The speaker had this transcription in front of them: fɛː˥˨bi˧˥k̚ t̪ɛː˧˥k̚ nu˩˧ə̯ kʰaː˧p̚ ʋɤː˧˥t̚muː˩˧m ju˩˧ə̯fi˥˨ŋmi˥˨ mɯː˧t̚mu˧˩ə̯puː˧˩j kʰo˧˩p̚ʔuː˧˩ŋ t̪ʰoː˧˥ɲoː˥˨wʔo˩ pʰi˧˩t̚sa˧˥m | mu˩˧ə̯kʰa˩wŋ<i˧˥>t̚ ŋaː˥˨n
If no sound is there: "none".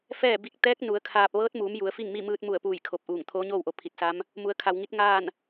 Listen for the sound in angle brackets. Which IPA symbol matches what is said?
i˧˥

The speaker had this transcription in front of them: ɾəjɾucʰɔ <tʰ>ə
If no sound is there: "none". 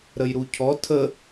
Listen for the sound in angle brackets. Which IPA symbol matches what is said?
tʰ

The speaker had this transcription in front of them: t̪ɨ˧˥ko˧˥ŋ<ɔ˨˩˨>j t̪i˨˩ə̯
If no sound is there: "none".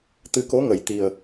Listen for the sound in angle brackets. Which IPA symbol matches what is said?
ə˨˩˨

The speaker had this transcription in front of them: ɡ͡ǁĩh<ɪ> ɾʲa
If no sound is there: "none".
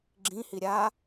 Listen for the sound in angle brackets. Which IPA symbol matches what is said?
i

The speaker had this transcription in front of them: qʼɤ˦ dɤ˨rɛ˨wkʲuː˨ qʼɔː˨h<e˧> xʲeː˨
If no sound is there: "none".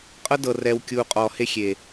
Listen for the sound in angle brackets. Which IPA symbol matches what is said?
e˧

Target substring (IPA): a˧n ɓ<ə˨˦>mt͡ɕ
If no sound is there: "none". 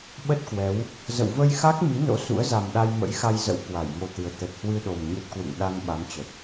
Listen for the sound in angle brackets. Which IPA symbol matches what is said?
a˨˦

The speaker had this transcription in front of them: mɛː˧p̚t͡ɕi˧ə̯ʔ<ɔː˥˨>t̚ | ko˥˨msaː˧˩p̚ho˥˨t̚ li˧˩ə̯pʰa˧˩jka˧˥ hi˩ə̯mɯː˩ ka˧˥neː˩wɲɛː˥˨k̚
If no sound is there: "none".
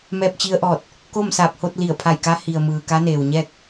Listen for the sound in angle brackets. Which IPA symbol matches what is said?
ɔː˧˩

